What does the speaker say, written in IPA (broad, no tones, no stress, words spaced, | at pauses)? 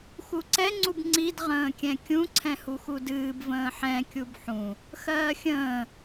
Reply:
xuǀɛ ŋ͡ǀubŋ͡ǀid ʁə̃ːkʲɛ̃kʲũ ǀʰɛ̃huxudɨːb və̃ːħɛ̃ kʲubħũ | xɜːxʲə̃ː